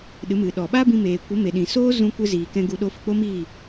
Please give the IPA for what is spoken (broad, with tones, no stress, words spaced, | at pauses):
ɗɨ˨˦mɨ˨ ɗɔ˨ɓa˦bĩ˧ meː˨kʷə˨˦me˨ ɗĩ˨soː˦ zũ˧ kʷɨ˧ziː˨ kɛ̃˧ ɡu˧ɗo˧fi˨ k͡po˦miː˦˨